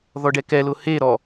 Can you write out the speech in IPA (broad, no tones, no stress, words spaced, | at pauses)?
ðɔɖɛkɛlʊ he ɾɔ